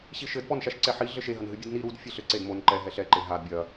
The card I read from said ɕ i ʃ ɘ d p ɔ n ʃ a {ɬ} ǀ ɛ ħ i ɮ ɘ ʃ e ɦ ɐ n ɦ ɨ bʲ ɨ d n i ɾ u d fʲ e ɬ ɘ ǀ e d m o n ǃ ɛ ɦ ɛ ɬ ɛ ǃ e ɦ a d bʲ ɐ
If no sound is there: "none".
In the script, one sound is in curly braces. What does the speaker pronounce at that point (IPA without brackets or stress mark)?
ʃ